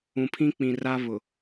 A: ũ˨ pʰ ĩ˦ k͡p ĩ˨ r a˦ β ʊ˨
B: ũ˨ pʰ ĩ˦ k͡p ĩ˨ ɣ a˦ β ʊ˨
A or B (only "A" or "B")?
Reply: A